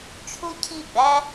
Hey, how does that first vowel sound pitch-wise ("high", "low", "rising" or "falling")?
high